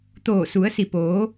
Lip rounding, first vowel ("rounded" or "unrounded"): rounded